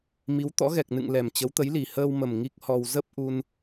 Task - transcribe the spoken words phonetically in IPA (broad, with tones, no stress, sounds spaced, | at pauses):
m i˨˦ w t̪ ɔ̰˧˥ ɣ ɛ˨˩ k̚ n ɨ̰˧˨ ŋ l ɛ˨˩ m t͡ɕ ə˨˦ w t̪ ə˨˦ j l i˨˩ h əː˧ w m ə˨˩ m ŋ i˦˥ k̚ h ɔ˧ w z ə˦˥ p̚ ʔ u˧ n